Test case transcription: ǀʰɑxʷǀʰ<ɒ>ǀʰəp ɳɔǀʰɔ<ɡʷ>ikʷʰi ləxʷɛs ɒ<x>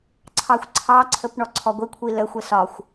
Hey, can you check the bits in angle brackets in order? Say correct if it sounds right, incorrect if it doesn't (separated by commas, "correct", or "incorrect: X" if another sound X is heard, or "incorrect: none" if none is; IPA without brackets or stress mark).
incorrect: ɑ, correct, incorrect: xʷ